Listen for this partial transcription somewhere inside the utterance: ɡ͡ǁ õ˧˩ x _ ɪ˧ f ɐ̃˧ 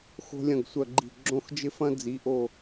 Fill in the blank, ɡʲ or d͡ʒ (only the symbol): d͡ʒ